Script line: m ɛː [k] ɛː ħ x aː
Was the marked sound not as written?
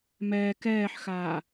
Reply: no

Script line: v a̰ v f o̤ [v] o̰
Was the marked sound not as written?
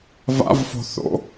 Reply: yes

